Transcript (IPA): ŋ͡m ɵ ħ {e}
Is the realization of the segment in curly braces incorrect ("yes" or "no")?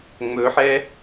yes